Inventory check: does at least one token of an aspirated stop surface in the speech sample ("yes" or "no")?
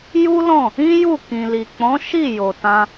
no